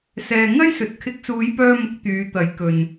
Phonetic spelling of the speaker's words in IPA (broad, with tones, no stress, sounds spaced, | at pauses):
s ɛː˨ ŋ ɐ˥ j s ɵ˨ t̚ kʰ ɪ˨˥ k̚ s uː˨˧ j p œː˧ m ʊ˨ k̚ t̪ yː˨˧ t̪ ɐ˨˥ j k ɵ˨ n